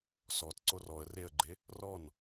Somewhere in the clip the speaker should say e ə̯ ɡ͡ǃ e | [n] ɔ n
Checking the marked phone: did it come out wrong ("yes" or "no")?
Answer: yes